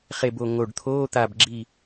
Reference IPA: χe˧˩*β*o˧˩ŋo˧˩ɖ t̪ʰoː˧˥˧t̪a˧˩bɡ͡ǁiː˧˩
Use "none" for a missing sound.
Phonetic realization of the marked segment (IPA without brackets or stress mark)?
b